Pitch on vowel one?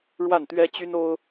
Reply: falling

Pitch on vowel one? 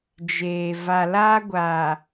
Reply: low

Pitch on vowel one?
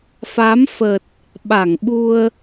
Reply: rising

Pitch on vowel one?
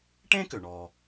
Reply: high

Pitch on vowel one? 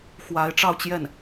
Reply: rising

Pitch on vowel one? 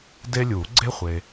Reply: high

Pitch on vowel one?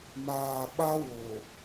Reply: low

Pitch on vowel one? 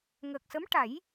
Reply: low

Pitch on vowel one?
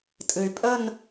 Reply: low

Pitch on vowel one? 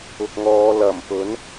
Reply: low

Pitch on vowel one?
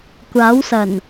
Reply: rising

